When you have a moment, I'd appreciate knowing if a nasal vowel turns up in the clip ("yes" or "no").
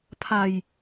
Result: no